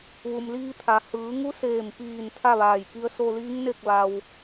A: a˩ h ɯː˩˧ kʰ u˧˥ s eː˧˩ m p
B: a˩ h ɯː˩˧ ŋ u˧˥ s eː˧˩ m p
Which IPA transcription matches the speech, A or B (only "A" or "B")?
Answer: B